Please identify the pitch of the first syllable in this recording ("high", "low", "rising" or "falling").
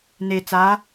low